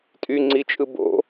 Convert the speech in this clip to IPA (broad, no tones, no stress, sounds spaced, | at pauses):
tʼ y ŋ͡ǀ i t͡ʃʼ ɯ b o̰